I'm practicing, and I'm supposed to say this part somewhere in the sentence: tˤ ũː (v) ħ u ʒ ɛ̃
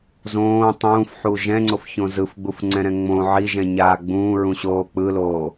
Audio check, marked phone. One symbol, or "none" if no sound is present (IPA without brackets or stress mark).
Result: f